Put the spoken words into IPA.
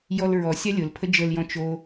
j ɔ l ɹ ɔ sʲ a lʲ ʊ l pʰ ə d͡ʒ ə l j ɔ̃ t͡ʃ o

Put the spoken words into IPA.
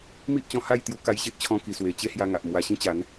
m i˦ ʔ t͡ɕ ɔ̃˧ h a˥˧ j t̪ j u˧ k a˧ j ɕ e˦ ʔ t͡ɕʰ ɔ̃˧ k i˧ s w e˧ t͡ɕ e˦ h j a˧ ŋ a˨ ʔ m w a˧ ɕ ĩ˦ t͡ɕ a˨˦ n

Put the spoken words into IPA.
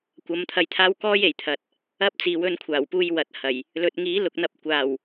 kʷ ɐ˨˧ m t̪ʰ ɐ˧ j t̪ʰ aː˥ w k ɔː˥ j e˨˩ j t̪ʰ ɐ˨ t̚ | ɐ˥ p̚ t͡s iː˨ w ɵ˧ n kʷʰ aː˨˩ w p uː˧ j w ɐ˨˥ t̚ h ɐ˨˩ j | l ɵ˨ t̚ ŋ iː˨˥ l ʊ˨ k̚ n̪ ɐ˧ p̚ kʷ aː˨˩ w

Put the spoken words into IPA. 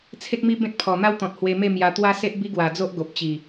t͡sʰ e˦ k̚ m i˦ b ẽ˦ t̚ pʰ ɔ˨˩ n̪ a˦ w t̪ ɔ̃˨ t̚ h w e˧ m e˥˧ m j a˧ t̪ w a˦ s e˦ ʔ b i˦ ɡ w a˨˩ d͡z o˦ ʔ ɡ o˨ p̚ t͡ɕ i˨˩

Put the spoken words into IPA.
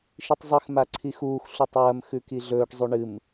ʃ i tˤ zˤ ɨ x m a ǀʰ i x uː x ɬ u tˤ w ɐ m x ʉ k i ɮ ɵː ʈ zˤ u ɳ ɨ m

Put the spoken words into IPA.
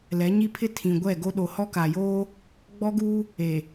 l ɛ˨˦ ɲ i˦ pʰ ɪ˦ tʰ ĩ˨ ɡʷ ɛ˦˨ ɡ o˦ ɗ o˨ h ɔ˦ k a˨ j oː˦ | ɡ͡b ɔ˦ ɡ uː˦ | e˨

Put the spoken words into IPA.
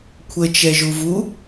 kʷʰ ə t͡ʃ ɛ ʒ u v u

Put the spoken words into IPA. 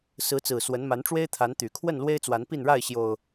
s ɹ̩˨˦ t͡s ɹ̩˨˩ s w ə˨˦ n m a˨˦ n ʈ͡ʂ w e˦ ɪ̯ t̪ʰ a˨˦ n t̪ y˨˩ kʰ w ə˥˨ n l w e˦ ɪ̯ t͡s w a˨˦ n p i˥˨ n ɻ a˥˨ ɪ̯ ɕ j o˨˩ ʊ̯

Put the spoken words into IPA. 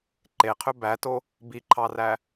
ǃ e qʰ ø b æ t o | b i ǃʰ ɑ r æ

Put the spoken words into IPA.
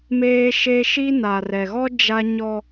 m eː˦ ʃ e˦ ʃ i˦ n a˨ r ɛ˨ ɣ ɔ˦ d͡ʒ a˦ ɲ ɔ˦

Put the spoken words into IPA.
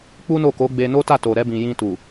k͡p u˦ n o˦˨ k o˨˦ ɡ͡b e˧ n o˦ t a˦˨ t o˨ ɾ ɛ˧ b ĩ˨ j ĩ˧ t u˨

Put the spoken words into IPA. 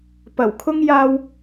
p ɐ˨˩ w kʰ ʊ˥ ŋ j aː˧ w

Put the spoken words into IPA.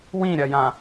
w ĩ ɾʲ ɐ j ã

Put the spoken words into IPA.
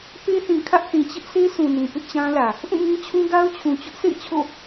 p e˦ θ ĩ˨ kʰ ä˦ ʔ θ ĩ˨ t͡ɕ ɪ˦ ʔ sʰ e˦ sʰ ũ˨ n ĩ˨ p ɪ˦ ʔ t͡ɕ ã˦ l ä˨ | ʔ ũ˦˨ ŋ ĩ˦ t͡ɕʰ ũ˦ ɡ a˦ ʊ̯ t͡ɕʰ ũ˨ t͡ɕ ʊ˦ ʔ sʰ ḛ˦˨ ɪ̯ t͡ɕʰ o̰˦˨

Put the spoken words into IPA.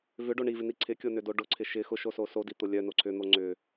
v ʏ ɖ o ɳ i v ɪ n i ǀʰ ɪ kʲ o n ʏ d o ɖ ʊ ǀʰ ɪ ʃ ɪ x ʊ ʃ o s o s o d i t̪ ʊ lʲ œ n o ǀʰ ʏ n̪ o ŋ͡ǀ ʏ

